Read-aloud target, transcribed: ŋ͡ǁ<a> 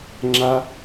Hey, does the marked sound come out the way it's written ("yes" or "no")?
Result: yes